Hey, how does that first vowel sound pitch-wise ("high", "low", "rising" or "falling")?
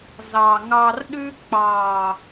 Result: low